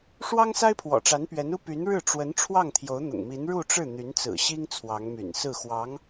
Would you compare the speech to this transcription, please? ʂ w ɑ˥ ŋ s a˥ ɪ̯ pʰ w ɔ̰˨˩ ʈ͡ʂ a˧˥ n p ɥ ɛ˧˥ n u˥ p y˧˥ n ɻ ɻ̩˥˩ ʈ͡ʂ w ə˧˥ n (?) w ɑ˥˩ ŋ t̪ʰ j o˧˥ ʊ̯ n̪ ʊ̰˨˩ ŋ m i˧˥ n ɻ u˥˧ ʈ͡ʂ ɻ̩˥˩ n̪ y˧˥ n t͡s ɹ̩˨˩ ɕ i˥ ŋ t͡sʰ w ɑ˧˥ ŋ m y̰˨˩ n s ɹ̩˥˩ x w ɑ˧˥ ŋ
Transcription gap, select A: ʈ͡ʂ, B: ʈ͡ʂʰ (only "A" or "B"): B